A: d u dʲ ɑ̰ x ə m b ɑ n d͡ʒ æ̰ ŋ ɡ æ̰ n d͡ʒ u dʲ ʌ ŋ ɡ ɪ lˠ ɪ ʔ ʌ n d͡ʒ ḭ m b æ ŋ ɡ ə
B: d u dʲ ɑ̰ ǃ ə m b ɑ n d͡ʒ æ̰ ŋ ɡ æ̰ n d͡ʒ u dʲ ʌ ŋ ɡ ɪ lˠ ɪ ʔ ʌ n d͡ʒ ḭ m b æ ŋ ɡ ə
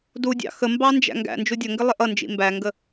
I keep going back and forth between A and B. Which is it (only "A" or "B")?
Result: A